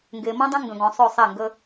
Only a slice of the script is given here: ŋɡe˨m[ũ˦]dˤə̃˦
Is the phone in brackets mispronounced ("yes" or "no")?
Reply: yes